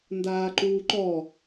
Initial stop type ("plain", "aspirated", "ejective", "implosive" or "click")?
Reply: plain